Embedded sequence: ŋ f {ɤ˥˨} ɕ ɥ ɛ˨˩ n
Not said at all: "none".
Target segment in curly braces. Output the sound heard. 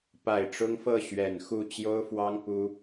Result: ɤ˥˨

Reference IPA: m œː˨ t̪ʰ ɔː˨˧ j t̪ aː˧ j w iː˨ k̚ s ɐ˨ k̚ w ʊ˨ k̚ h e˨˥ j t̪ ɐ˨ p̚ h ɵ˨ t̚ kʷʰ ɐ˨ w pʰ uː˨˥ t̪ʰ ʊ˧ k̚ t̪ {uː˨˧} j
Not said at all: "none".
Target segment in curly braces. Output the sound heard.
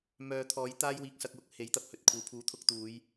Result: uː˨˧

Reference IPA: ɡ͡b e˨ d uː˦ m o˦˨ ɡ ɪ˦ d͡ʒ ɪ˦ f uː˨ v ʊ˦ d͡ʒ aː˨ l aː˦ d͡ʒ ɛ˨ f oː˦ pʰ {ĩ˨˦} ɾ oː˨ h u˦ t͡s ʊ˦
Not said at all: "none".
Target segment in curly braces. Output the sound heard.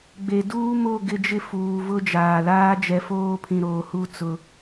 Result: ĩ˨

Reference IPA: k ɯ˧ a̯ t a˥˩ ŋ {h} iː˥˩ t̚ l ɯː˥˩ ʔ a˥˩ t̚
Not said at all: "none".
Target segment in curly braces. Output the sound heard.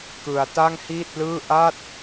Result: h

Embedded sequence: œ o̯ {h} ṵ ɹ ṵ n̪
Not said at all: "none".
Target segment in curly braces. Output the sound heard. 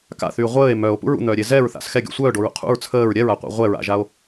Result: p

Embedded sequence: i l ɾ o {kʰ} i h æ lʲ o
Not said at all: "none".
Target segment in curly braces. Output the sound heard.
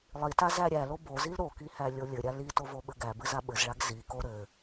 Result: k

